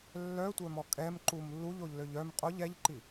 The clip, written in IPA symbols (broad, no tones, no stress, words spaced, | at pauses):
lːœtʷœmɔ kʼɛmǃum lːuʎoʎløʎ œm qʼoʎ ɛʎǃi